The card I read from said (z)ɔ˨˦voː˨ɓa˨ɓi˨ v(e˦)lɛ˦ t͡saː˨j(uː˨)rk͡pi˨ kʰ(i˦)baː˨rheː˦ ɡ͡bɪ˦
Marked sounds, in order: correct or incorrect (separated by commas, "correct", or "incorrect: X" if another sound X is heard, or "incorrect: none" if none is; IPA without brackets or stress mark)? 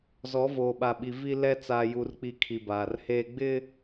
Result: correct, incorrect: i˦, incorrect: u˨, incorrect: i˨